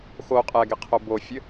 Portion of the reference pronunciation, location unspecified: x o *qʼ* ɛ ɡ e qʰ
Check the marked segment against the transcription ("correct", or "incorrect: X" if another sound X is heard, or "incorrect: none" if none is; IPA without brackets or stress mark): correct